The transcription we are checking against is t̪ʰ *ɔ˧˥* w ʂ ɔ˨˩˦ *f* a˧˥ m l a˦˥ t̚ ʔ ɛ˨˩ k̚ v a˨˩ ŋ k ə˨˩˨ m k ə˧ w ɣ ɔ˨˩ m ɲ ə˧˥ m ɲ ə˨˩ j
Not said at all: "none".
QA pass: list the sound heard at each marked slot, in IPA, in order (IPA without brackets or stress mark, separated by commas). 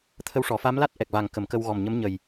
ə˧˥, f